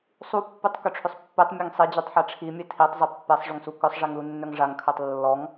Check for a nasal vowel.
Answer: absent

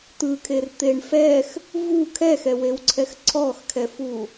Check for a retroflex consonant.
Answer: present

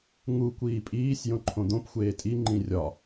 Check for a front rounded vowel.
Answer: absent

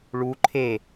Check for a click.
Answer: present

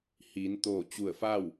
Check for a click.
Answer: absent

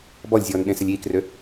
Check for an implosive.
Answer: present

